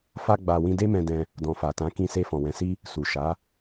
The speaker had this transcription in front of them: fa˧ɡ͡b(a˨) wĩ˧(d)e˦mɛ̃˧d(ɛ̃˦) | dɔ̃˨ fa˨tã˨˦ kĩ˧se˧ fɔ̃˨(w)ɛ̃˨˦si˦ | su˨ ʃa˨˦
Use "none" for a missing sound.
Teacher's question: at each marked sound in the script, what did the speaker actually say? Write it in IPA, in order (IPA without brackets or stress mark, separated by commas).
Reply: a˨, d, ɛ̃˧, w